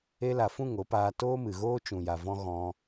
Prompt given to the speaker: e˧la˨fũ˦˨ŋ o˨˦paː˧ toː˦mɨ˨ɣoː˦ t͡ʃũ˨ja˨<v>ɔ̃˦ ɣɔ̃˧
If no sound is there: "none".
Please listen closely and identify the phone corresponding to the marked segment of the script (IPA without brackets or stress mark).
v